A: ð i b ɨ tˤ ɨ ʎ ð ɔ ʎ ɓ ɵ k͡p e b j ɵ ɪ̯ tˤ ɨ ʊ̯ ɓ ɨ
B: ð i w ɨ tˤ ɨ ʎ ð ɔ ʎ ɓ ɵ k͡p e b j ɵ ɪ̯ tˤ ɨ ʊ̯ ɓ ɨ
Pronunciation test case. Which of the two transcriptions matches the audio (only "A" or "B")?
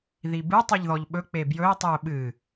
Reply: A